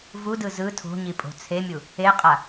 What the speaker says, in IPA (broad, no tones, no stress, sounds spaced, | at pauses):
v u d ɯ z ɯ tʰ o̤ ɲ i pʼ o̤ t͡sʰ e mʲ u | e qʼ a